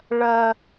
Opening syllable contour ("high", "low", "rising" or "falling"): high